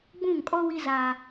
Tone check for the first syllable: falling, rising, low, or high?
falling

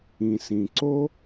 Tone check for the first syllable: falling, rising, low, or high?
low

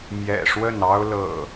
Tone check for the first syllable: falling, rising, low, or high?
low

